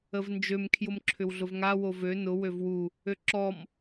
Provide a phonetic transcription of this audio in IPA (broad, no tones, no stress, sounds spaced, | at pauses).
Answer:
ə v n d͡ʒ ø m kʰ j ʊ m ǁʰ ʏ w ɮ ʊ v ŋ a w o v ø n ʊ w ø v w u | ø ǁ ɔ m